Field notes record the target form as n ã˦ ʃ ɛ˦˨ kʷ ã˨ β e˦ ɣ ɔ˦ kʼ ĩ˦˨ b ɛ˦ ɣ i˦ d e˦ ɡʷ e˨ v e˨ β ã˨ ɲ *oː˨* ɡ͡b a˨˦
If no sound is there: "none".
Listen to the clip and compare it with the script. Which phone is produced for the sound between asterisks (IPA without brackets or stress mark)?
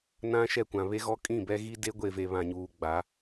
uː˨